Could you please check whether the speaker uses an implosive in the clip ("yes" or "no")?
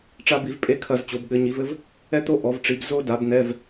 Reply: yes